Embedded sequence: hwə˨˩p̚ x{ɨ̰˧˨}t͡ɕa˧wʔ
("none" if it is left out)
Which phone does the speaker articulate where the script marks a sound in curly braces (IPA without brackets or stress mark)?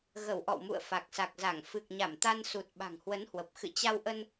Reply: ɨ̰˧˨